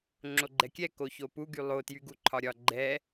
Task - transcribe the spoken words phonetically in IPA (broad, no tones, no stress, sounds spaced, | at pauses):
ŋ͡ǁ o ɡ͡ǃ ɛ kʲ ɛ k o ç o p u ɡ y lˠ o t j y ɡ u ǃʰ ɒ ɾʲ ɒ ɡ͡ǃ ɛ